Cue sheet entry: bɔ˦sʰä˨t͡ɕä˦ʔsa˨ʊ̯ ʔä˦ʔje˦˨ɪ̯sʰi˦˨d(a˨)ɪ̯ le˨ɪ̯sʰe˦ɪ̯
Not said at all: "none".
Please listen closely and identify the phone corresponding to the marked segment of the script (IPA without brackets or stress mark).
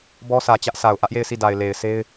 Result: a˨